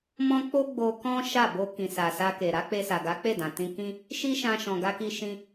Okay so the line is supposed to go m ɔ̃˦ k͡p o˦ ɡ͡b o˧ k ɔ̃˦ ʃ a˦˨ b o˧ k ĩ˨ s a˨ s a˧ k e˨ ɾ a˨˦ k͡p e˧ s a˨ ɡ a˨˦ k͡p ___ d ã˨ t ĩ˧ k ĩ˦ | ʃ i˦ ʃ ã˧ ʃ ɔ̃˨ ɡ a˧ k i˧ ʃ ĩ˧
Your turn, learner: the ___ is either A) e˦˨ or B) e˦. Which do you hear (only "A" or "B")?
A